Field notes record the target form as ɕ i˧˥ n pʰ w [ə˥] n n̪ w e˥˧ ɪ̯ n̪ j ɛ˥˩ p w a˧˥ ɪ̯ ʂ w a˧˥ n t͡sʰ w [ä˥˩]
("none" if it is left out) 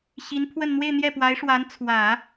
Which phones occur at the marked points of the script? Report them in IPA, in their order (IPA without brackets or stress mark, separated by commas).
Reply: ə˥˧, ä˨˩˦